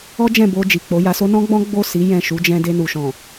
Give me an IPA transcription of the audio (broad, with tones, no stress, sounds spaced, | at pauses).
ɔ˦ d͡ʒ ɛ̃˦˨ b o˧ d͡ʒ i˨ k͡p o˨˦ j a˧ s o˦ n ɔ̃˦ ɡ͡b ɔ̃˦ ɡ͡b o˦˨ s i˨˦ j ɛ̃˦˨ ʃ u˨˦ d͡ʒ ɛ̃˧ d e˧ n u˨ ʃ ɔ̃˨